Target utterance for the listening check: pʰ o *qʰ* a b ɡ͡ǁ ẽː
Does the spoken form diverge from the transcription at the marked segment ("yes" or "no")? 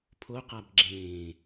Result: yes